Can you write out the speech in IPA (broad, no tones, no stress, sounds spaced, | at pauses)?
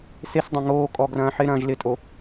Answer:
s e s dˤ ɐ̃ ŋ oː kʼ ɔ ɡ r ɐ̃ː ħ ɪ ɾ ɐ̃ː ʒ l ɪ tʼ o